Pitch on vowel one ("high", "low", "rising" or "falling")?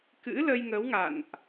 rising